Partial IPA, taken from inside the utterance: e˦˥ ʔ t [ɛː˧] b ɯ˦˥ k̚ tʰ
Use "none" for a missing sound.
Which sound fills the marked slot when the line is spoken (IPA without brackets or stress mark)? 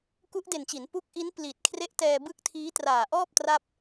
ɛː˧